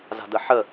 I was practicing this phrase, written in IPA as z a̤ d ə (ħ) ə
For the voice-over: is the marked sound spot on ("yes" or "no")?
yes